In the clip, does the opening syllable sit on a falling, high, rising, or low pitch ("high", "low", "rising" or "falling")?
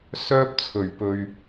high